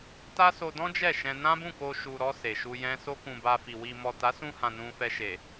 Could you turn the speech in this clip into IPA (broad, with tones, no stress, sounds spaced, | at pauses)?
t a˦ s o˧ d ɔ̃˦ d͡ʒ ɛ˦˨ ʃ ɛ̃˧ n ã˦ b ũ˦˨ k o˧ ʃ u˨ ɾ ɔ˧ s e˨ ʃ u˧ j ɛ̃˦ s o˦ k ũ˧ b a˧ f i˨ w i˨ m ɔ˨ t a˨˦ s ũ˧ h ã˨ n ũ˧ f ɛ˧ ʃ e˨